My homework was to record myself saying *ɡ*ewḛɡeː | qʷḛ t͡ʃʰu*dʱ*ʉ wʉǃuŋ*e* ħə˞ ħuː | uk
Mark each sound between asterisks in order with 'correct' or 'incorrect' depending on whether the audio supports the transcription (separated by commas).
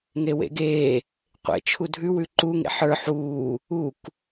incorrect, correct, incorrect